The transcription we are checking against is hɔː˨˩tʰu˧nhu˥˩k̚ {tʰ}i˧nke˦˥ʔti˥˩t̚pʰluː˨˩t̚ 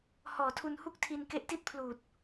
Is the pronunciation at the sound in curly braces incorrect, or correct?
correct